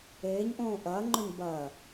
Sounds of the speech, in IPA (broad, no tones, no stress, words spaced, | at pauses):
eːɲʔõː ʔɐːŋ͡ǃɵɲ bɐː